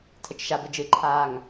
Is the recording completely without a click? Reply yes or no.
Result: no